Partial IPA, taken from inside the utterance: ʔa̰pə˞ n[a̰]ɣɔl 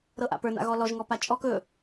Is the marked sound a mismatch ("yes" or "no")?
no